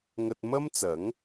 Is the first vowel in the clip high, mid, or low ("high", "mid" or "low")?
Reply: low